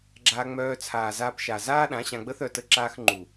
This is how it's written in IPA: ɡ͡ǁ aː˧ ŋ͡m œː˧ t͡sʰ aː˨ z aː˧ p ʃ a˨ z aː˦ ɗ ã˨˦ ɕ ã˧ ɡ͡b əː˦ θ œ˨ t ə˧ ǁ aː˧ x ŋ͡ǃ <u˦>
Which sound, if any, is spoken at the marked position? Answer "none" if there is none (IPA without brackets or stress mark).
u˨